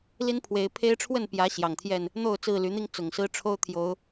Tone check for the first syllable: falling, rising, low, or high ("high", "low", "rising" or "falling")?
high